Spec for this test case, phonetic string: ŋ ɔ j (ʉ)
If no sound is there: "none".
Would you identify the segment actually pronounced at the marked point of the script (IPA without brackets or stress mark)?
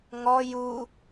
u